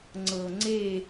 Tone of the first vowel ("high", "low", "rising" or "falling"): low